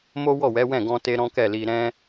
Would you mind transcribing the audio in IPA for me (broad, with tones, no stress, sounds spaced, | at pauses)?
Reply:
m o˦ w ɔ˦˨ w ɛ˨˦ w ɛ̃˦˨ ɡ ɔ̃˧ t e˧ ɾ ɔ̃˦ k ɛ˦˨ l i˧ ɾ ɛ̃˦